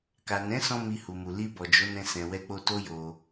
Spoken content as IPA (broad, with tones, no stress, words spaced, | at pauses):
ka˨nɛ̃˨˦sɔ̃˧ mi˧hu˨mu˨ li˧ bɔ˨d͡ʒo˨˦nɛ̃˧sɛ̃˨ wɛ˧k͡po˧ to˦jo˧